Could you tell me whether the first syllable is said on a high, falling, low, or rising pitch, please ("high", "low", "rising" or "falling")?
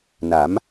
rising